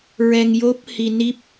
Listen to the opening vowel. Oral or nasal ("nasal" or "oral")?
oral